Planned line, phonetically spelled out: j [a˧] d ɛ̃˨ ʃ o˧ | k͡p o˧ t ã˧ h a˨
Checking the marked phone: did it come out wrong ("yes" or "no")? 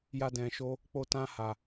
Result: no